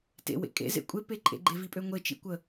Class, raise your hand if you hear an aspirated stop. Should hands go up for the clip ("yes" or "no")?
no